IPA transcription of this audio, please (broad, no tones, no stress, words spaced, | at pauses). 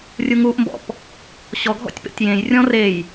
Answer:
rʲuŋuʔmbɔ̰p | ɕɔɡʱɔ̰tʲ pḛtʲjẽjrʲɔ̃ rej